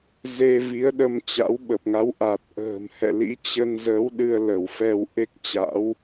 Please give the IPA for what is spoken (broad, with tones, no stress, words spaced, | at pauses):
ze˧ vi˨˦ə̯ɗə˧mt͡ɕa̰˧˥w ɓə˨˩p̚ŋa˨˦w ʔa˨˩t̚ ʔə̤ː˨˩m hɛ̰˧˨lḭ˧˥t͡ɕə˧nzə˨˦w ɗɨ˧ə̯ lə˧˩wfɛ˧w ʔe˦˥k̚t͡ɕa̰˧˥w